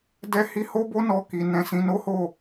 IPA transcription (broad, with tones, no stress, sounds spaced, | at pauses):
d ɛ˦ h i˦ h o˦ b o˦ n ɔ˧ k i˧ n ɛ̃˧ s ĩ˧ n o˦ h o˦˨